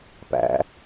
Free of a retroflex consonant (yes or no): yes